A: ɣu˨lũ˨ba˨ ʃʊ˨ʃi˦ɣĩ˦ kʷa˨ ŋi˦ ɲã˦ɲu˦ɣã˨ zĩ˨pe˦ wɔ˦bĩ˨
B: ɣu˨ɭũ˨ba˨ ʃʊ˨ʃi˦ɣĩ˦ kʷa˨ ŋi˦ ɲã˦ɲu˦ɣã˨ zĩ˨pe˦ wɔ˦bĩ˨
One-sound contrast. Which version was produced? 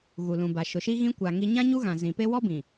A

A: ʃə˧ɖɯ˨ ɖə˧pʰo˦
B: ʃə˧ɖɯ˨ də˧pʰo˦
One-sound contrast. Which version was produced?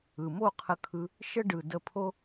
B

